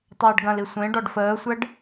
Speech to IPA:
tˤəːɖɡɐ̃li sʷẽ ɖɔɖfəːsʷɛɖ

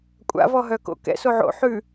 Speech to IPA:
kʷʼa̰vɔ ɦœko̰kɛ̰ soʕo̰ ħʉ

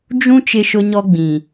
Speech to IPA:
d͡ʒũ˦ t͡ʃɪ˦ʃʊ˦ɲɔ˦ɡ͡bĩ˨

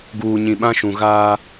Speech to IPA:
ɡuː˨ɲĩ˨ ɓã˦ʃũ˨ɣaː˦

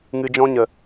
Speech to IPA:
ŋɨ˧d͡ʒɔ̃˦ɲə˨

